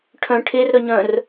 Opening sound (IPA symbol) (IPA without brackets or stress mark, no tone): ʈʰ